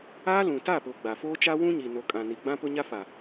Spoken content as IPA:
aː˦ lũ˨ta˦˨pʊ˨ ɡ͡ba˨foː˦t͡ʃa˦ wũ˦ ɲi˨no˨ kʼã˨ni˨ ɡ͡bã˦pʊ˦ɲa˦ fa˨

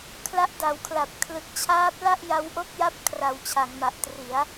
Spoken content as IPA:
kʰla˦˥ʔda˩˦wkʰla˨˩p̚ kʰlɯ˨˩k̚t͡ɕʰaː˦˥p̚ la˥˩ʔ ja˦˥wʔo˥˩k̚ja˥˩p̚kʰra˩˦w t͡ɕʰa˩˦ŋma˨˩ʔtri˩˦a̯

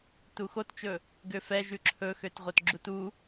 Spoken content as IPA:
tuxott͡ʃɵ | ɡøfɛ ʒʉǁʰɵxøtʁʷœt ɡ͡ǁutu

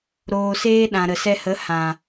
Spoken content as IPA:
ɾoː˧seː˦ ɗã˨ɾə˨sɛ˧hə˨˦ hã˨

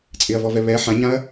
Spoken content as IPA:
t͡sʼɪɐ̯vɔvɛ βɛ ħãɲãɐ̯

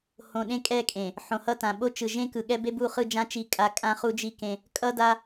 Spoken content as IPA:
hõ˨ ɗẽ˦kʼɛ˦˨kʼẽ˨ | ħõ˨hʌ˦tã˨ ɓo˦t͡ʃɯ˨ ʒẽ˦kɯ˨ɠɛ˦ be˦bu˦˨χɯ˦˨d͡ʒã˦ t͡ʃi˦kʼa˦ kʼã˦χu˦d͡ʒi˦kẽ˦ | kʼʌ˦da˦

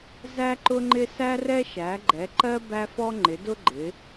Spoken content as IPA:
zæ˦ǃʊ˦ŋ͡ǃɪ˦ sæ˦rɛ˦ ʃæ˩˧ɡ͡ǃɛ˩˧ǃɜ˦ bæ˦fɔ˦ ŋ͡ǃɪ˩˧dʊ˦ɡ͡ǃɪ˩˧

